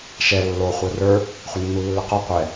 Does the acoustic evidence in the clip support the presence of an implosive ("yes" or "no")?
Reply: no